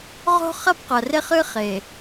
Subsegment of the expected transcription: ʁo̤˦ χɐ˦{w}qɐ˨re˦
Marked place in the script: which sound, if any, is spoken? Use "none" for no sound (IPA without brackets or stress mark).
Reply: b